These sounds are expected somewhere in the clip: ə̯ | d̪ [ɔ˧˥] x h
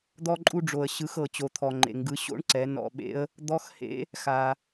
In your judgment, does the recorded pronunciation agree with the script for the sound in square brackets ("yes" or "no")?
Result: yes